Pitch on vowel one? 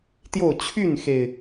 falling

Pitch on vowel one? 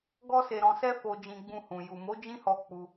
high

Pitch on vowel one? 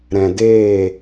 low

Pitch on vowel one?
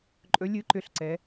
rising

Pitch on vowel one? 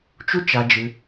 high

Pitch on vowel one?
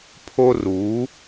high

